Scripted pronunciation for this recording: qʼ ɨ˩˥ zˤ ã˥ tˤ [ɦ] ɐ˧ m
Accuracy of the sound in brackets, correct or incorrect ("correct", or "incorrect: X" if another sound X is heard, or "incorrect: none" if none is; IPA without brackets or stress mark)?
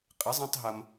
correct